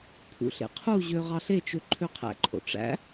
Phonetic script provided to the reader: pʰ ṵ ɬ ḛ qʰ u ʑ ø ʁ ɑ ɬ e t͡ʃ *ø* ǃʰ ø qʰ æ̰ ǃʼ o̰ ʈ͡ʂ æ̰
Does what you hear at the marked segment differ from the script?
no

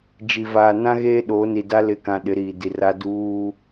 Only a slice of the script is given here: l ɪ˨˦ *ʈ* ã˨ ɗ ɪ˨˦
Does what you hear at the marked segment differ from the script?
yes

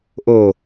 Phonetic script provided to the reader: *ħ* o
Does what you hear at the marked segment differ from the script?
yes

